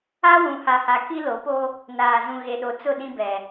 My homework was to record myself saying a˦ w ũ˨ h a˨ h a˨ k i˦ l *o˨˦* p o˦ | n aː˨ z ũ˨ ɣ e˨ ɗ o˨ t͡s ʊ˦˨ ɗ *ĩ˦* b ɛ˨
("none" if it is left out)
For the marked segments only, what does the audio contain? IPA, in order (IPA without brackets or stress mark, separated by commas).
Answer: o˨˦, ĩ˦